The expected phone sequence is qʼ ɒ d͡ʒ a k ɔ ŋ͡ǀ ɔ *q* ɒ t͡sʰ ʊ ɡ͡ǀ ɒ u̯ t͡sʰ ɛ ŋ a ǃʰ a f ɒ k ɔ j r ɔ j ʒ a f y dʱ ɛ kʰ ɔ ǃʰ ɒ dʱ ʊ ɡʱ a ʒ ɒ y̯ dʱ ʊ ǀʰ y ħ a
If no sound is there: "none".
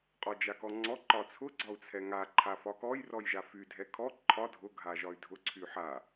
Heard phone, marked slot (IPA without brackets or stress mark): ǃ